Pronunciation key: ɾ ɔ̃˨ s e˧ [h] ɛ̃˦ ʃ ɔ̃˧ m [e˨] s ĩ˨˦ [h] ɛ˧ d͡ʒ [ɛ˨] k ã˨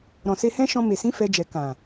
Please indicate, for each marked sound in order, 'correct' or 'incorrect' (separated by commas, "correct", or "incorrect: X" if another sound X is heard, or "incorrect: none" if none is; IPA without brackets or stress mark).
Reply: correct, correct, incorrect: f, correct